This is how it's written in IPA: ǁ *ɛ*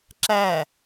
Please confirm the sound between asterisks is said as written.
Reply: no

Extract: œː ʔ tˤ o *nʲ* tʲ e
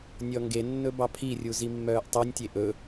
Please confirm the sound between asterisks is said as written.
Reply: yes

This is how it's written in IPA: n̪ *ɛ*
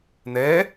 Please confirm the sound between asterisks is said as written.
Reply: yes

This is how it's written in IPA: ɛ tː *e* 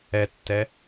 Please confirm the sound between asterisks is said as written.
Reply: no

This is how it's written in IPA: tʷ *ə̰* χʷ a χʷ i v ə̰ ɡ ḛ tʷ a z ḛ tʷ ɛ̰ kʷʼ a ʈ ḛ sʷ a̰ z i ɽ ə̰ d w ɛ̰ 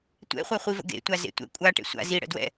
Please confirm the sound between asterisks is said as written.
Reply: no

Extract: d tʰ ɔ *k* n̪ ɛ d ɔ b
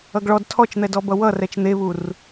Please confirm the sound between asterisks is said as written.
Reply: no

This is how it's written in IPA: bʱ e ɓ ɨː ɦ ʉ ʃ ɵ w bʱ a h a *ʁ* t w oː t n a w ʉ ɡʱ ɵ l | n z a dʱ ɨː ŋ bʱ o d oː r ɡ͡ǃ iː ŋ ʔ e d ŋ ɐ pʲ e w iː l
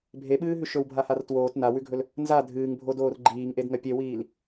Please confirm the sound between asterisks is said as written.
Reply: no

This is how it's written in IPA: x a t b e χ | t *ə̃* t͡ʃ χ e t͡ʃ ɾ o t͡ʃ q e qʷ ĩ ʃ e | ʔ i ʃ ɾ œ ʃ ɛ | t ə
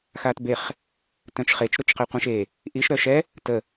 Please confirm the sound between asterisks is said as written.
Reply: no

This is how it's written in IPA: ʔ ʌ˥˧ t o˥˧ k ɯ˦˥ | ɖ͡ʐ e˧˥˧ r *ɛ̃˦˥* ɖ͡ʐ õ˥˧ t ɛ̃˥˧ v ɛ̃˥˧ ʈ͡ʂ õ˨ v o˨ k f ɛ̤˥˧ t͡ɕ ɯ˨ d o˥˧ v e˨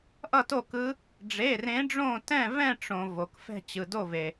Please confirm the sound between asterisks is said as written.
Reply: no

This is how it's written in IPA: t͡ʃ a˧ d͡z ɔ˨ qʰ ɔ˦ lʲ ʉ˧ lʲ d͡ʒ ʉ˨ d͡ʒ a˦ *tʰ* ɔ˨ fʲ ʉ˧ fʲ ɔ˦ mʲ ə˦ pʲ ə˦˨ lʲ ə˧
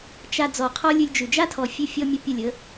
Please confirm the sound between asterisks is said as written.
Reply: yes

